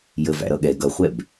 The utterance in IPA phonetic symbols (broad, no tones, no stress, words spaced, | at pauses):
jəv æ̰ɾʌɠɛ ɡʌχʷɛb